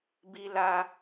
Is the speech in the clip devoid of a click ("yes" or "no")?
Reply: yes